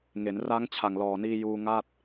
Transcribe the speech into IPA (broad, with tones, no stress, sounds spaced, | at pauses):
ŋ e˩˦ n r a˦˥ ŋ t͡ɕʰ a˨˩ ŋ l ɔː˨˩ n iː˧ j uː˧ ŋ a˥˩ t̚